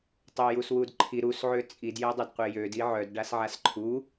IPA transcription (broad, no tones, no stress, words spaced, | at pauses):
tˤøjuswudǃʰi ɾus ʕøt͡sʼid jɛdˤødqʷejød iʕœd ɖasʕasǃʰu